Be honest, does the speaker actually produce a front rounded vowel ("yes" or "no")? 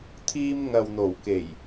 no